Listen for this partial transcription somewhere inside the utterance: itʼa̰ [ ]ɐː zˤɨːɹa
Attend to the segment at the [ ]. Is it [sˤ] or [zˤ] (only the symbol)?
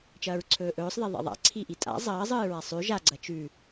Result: zˤ